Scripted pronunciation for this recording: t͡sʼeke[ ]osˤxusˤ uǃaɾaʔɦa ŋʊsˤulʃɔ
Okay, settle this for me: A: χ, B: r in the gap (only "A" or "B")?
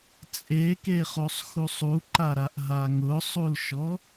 A